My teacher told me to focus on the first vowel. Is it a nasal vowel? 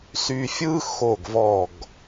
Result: no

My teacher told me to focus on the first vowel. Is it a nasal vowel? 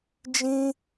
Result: yes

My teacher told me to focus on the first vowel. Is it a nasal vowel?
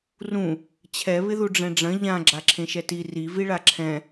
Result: yes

